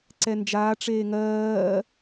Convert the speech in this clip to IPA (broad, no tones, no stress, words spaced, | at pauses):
ǀɛnd͡ʒaː ʈ͡ʂeːŋɜː